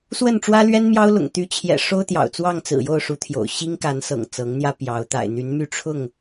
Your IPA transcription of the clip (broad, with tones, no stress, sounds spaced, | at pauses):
s w ə˥˨ n ʈ͡ʂ w ä˦ l ɥ ɛ˦ n m j ɑ˦ ʊ̯ l ʊ̰˨˩ ŋ t̪ y˨˦ t͡ɕʰ j ɛ̰˨˩ ʂ o˦ ʊ̯ t̪ j ɑ̰˨˩ ʊ̯ t͡s w ɑ˥˨ ŋ t͡s ɹ̩˨˩ j o˥˨ ʊ̯ ʂ u˨˦ t̪ʰ j o̰˨˩ ʊ̯ ɕ i˦ ŋ k a˨˦ n s ɤ̰˨˩ ŋ t͡s ɤ˨˦ ŋ n̪ j ä˦ p j ɑ˨˦ ʊ̯ t̪ a̰˨˩ ɪ̯ n̪ y˨˦ n m y˥˨ ʈ͡ʂʰ ʊ˥˨ ŋ